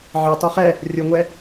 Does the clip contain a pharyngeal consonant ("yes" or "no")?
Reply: yes